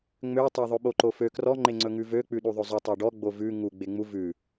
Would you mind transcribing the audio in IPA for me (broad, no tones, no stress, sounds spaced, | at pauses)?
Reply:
ŋ͡m ø tˤ ø ðˤ ɵ ɓ o ǃ o f ø k r ɔ ŋ͡ǃ e ŋ͡ǀ ɵ ŋ ʉ v ø k͡p ʉ ɗ u ðˤ ɵ zˤ o tˤ œ ɖ ɔ ɡ͡b o v ʉ ŋ u ɡ͡b e ŋ͡m u v ʉ